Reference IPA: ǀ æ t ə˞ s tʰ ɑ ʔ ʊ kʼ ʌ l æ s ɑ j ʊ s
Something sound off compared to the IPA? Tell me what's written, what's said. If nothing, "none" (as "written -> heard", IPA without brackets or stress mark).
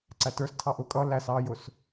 none